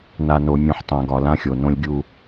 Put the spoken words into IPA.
na˨ no˨mʲũ˨ħtˤã˨ ɡɒ˨lã˦xʲo˨ nõ˦lʲɡʲu˦

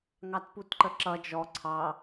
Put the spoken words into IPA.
ŋɑtputǃəǁʌ d͡ʒɔ ǀʰɑ

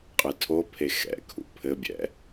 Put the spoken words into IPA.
qʼɨtʰopʰe xɛ̰kʰṵ pʰɘbʲɛ̰

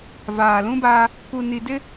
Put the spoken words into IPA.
vaː˨lũ˦baː˦ | ku˨ni˨ dɪ˦

